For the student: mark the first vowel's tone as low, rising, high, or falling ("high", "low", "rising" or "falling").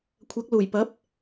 rising